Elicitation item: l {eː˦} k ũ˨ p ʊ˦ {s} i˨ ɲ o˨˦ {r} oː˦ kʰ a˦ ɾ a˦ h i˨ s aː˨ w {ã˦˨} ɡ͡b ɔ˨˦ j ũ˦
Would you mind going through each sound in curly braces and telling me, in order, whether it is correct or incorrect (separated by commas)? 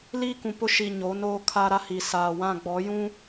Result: incorrect, incorrect, incorrect, correct